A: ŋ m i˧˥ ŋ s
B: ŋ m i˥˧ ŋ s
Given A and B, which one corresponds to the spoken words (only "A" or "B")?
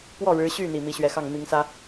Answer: A